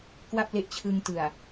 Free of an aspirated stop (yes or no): no